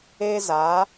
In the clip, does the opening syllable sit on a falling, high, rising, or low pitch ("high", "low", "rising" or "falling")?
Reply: high